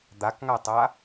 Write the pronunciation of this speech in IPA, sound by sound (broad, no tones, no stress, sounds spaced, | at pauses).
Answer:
d̪ a k ŋ a tˤ a